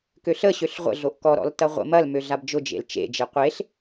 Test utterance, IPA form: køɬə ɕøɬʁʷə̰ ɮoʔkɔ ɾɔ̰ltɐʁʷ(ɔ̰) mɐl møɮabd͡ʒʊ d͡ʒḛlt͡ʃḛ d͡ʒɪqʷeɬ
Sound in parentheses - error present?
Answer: yes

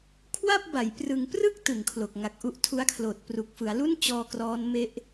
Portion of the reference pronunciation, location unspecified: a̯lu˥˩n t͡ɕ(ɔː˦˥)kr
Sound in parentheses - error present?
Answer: yes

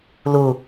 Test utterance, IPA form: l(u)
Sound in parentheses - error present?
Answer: no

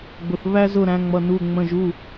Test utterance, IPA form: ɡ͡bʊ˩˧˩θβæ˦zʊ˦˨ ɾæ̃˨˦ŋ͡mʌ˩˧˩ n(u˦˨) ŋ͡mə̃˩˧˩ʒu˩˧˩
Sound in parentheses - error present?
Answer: yes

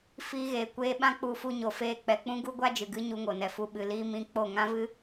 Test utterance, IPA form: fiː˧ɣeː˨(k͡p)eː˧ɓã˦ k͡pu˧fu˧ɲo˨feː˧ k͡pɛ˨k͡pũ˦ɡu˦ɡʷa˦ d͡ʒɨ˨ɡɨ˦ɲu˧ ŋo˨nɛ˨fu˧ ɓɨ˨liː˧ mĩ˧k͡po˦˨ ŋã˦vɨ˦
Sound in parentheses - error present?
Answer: yes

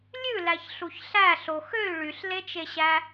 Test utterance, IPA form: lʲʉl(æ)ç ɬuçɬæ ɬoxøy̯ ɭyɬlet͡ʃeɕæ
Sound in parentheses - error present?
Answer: no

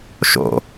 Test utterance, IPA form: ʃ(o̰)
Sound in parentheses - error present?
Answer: no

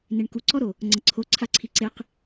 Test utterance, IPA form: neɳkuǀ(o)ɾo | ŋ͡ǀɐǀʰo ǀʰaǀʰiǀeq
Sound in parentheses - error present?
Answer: yes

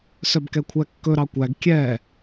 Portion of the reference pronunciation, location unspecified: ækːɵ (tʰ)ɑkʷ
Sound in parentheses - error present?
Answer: yes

